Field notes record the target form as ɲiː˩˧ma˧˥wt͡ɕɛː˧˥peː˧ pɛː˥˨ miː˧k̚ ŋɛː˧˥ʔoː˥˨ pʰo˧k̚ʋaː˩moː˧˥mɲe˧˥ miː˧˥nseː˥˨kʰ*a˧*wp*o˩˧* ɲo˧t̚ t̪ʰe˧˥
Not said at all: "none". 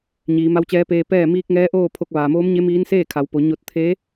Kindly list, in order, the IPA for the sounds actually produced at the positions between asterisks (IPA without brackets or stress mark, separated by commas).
a˩˧, o˩˧